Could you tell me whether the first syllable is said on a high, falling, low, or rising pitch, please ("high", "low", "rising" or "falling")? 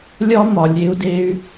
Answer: high